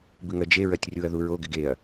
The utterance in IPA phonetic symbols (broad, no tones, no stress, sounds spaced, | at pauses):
b ɨ ŋ ɜ d͡ʒ e ɹ ɜ tʲ rʲ u ɐ̯ ð u ɹ o ɡ ɪ ɡ e ɐ̯